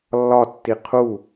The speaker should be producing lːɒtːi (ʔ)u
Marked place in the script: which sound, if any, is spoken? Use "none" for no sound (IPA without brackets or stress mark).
qʰ